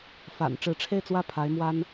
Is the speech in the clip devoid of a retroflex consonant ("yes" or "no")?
no